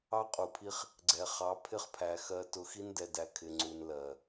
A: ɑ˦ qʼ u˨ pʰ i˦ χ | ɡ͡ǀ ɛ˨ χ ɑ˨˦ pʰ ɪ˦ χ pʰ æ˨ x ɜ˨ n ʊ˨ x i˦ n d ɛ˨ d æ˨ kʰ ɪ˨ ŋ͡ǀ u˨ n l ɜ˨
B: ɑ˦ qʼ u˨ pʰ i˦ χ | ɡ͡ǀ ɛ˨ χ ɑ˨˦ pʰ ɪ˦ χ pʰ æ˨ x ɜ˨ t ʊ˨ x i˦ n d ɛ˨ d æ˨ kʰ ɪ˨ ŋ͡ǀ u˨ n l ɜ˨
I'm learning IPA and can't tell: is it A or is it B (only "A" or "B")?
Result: B